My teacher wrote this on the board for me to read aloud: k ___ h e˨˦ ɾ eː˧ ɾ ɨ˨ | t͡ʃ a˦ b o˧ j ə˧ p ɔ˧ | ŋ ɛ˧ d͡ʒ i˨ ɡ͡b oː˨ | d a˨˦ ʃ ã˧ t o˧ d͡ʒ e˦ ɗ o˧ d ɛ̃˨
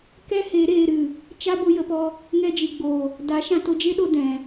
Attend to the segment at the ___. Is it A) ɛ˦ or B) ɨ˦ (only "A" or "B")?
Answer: A